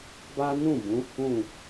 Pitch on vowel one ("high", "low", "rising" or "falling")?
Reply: high